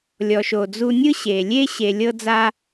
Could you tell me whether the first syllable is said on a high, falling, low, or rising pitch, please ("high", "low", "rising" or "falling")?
low